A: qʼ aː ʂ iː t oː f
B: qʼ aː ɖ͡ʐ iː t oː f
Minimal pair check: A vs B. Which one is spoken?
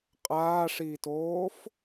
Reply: A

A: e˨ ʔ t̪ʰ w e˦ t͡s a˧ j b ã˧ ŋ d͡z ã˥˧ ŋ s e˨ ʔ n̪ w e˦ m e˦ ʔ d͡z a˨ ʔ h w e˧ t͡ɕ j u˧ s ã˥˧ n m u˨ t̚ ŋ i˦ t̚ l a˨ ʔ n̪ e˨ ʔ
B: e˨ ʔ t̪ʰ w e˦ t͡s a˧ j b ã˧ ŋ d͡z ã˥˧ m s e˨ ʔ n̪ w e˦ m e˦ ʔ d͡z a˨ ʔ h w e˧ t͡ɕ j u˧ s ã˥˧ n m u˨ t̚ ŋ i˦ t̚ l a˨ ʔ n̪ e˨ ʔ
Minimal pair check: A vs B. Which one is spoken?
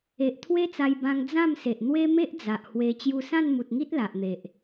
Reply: B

